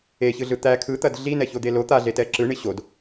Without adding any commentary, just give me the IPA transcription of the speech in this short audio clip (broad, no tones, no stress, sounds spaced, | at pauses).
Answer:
e ç ɯ ɮ ɯ t̪ æ kʰ ɯ t̪ ɐ d ɮ i n ɛ ç o d̪ e l o t̪ a ɮ e t ɛ ǁ ɯ ɳ i ɕ o d